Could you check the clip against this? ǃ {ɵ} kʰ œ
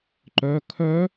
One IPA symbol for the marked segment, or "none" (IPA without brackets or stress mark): œ